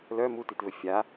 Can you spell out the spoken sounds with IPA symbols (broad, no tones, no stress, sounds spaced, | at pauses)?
l œ m u t i t v ɘ fʲ a